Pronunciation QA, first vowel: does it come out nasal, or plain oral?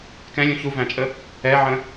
nasal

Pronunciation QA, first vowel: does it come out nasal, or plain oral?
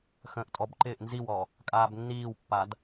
nasal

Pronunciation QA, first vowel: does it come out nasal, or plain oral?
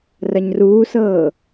oral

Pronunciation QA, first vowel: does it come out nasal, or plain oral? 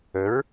oral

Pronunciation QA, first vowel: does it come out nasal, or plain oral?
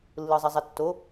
oral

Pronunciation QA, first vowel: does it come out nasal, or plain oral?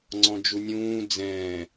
nasal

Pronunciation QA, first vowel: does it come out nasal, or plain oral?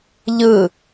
oral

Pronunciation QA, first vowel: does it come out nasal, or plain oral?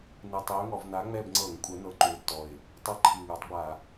oral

